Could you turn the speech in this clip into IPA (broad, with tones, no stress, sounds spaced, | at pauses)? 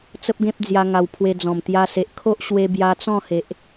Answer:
t͡s ə˦ p̚ ɡ ẽ˦ p̚ d͡z j a˧ ŋ a˧ w pʰ w e˧ d͡z ɔ̃˨˩ m t̪ j a˧ s e˨ ʔ kʰ o˦ ʔ ɕ w e˧ b j a˧ t͡s ɔ̃˥˧ h e˨ ʔ